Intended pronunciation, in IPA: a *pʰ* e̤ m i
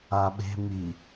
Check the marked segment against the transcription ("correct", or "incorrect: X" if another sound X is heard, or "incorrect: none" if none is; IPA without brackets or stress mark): incorrect: ɓ